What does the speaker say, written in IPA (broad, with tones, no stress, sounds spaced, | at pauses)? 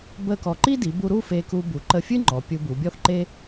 b ə˥˧ k ɔ˧ ǃ i˥ d i˩˧ b u˧ ɾ u˥˧ f e˧ k u˧ b u˩˧ ǃ ə˧˩ fʲ ɨ˥ ŋ͡ǃ ɔ˩˧ pʲ u˧ b u˩˧ bʲ ɔ˥ θ ǃ e˥